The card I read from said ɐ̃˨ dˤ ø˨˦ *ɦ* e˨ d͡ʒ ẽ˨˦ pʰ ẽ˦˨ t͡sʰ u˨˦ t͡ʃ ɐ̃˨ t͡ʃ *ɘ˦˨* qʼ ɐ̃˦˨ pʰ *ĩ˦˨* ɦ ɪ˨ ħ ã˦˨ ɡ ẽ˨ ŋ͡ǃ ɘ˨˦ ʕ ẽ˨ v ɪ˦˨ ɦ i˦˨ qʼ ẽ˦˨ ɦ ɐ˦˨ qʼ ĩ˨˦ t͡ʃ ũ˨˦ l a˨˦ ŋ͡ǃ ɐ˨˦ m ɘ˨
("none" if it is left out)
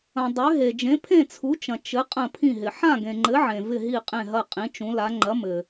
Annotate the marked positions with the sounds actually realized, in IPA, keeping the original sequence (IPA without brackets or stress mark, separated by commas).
ɦ, ɘ˨˦, ĩ˦˨